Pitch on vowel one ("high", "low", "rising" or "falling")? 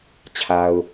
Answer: low